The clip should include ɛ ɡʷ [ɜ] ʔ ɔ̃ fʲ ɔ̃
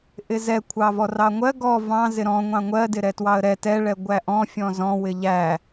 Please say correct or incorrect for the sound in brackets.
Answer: incorrect